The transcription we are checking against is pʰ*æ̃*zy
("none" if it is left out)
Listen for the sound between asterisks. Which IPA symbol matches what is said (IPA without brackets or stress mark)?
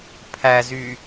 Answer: æ